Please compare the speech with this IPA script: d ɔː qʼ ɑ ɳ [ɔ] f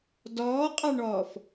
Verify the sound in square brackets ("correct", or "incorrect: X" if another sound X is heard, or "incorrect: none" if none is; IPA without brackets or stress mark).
incorrect: ɔː